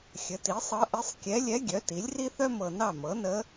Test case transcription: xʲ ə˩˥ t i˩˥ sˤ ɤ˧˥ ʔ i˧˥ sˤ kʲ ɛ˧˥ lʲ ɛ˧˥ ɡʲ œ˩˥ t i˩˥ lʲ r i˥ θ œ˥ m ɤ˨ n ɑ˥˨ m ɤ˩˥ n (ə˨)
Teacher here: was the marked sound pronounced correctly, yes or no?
no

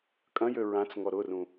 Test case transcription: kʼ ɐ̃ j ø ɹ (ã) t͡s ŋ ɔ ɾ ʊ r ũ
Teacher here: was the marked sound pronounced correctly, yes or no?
yes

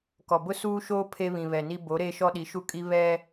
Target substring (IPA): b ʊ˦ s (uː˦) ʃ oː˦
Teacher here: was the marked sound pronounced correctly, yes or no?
yes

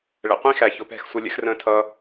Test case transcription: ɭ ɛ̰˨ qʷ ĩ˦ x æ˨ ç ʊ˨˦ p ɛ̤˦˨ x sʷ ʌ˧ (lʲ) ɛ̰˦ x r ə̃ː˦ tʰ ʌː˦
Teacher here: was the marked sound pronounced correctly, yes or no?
yes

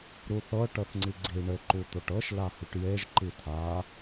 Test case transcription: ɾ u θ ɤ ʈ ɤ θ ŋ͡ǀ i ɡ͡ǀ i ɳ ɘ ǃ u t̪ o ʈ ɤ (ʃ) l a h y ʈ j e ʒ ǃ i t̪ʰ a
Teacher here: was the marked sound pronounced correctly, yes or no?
yes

